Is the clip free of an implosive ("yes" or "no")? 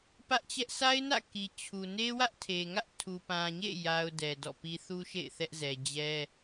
yes